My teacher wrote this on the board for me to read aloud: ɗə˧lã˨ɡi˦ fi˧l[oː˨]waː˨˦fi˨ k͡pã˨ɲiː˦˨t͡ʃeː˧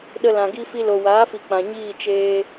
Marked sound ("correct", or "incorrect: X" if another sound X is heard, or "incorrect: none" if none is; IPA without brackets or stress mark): incorrect: o˨